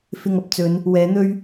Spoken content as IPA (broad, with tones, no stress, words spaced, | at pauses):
fɪ˧ŋɐ˧p̚t͡sɵ˨˧n | wɛː˨˥n̪ɵ˥ɥ